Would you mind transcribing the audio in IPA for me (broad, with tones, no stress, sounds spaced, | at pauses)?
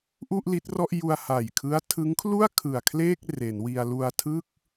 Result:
ʔ u˥˩ ʔ l i˦˥ t̚ r ɔ˥˩ ʔ j u˧ a̯ h a˨˩ j kʰ ɯ˦˥ a̯ tʰ ɯ˦˥ ŋ kʰ l u˥˩ a̯ kʰ ɯ˨˩ a̯ kʰ l eː˥˩ k̚ r e˩˦ n w i˧ a̯ l u˧ a̯ tʰ ɯ˥˩ k̚